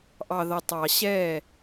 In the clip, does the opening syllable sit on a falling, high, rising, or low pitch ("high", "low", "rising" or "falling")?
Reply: low